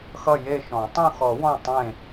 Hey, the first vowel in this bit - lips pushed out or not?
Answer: no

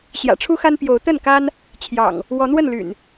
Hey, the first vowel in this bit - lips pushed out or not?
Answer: no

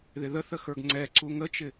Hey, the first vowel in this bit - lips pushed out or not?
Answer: no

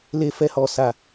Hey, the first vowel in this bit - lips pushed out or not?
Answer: no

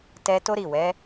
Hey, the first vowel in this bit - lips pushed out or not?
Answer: no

